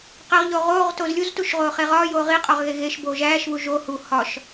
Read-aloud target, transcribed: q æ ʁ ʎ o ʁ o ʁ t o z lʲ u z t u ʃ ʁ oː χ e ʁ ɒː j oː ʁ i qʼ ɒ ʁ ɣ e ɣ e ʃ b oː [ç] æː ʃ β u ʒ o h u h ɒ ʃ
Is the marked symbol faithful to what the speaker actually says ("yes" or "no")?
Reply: no